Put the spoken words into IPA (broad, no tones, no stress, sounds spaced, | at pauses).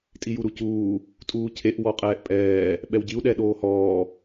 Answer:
tʼ i j u ɾ u c uː | tʼ uː cʰ e ʔ w ɔ qʼ ɛː ʔ pʼ ɛː | ɓ ɛ w ɟ i u̯ ɗ ɛ ɗ oː h ɔː